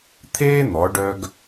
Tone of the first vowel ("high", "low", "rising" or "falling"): high